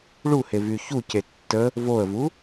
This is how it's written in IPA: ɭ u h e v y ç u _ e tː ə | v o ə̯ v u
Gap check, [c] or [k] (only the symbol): c